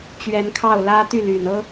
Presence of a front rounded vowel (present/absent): present